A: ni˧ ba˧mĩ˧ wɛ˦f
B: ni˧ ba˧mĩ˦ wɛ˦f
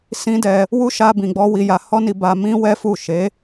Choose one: B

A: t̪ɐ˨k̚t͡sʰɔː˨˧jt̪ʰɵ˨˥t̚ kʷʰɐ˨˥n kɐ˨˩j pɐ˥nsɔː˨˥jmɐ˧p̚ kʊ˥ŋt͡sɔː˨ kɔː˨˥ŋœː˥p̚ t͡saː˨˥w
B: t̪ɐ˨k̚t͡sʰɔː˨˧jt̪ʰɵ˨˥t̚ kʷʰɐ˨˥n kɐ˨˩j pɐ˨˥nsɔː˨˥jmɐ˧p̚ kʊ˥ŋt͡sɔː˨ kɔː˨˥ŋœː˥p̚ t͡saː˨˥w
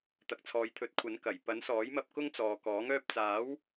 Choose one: B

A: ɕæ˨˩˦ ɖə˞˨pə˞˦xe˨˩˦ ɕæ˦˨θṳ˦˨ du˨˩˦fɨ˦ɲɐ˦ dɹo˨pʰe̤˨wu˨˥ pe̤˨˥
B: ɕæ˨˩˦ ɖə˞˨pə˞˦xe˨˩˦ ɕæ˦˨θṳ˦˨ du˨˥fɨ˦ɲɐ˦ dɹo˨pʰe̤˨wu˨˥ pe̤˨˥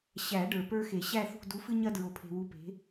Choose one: B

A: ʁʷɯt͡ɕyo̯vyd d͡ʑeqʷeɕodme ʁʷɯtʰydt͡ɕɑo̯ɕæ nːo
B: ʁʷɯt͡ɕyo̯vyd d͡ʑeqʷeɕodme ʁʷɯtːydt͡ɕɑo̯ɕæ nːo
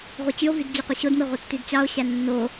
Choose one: B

